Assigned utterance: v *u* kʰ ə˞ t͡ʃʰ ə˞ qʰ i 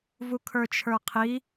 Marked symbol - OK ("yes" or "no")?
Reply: yes